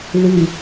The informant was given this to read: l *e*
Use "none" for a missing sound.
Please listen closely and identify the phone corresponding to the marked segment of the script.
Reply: i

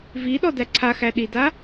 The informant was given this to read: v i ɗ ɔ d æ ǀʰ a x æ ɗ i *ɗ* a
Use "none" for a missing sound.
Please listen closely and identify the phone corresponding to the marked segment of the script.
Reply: d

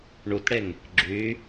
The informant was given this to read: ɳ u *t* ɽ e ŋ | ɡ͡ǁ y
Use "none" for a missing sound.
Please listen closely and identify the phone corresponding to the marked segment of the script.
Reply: t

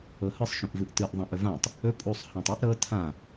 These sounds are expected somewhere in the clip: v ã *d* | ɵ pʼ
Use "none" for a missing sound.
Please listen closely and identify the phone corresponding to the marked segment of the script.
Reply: tˤ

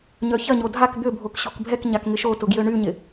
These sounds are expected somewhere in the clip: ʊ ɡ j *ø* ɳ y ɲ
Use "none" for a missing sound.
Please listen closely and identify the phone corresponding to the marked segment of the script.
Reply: ø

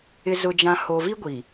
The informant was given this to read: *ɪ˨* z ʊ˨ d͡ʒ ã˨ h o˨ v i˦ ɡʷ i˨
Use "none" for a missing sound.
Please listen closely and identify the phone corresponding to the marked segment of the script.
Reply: ɪ˨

